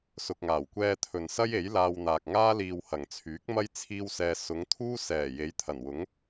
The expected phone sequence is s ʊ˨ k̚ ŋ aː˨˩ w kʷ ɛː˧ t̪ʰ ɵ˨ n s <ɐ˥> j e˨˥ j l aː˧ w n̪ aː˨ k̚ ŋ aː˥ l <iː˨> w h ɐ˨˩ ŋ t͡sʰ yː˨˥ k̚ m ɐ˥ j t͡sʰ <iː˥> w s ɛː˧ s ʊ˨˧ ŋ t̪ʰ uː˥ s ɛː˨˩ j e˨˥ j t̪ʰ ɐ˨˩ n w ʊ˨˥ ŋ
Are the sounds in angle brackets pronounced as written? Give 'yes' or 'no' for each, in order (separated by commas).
yes, yes, yes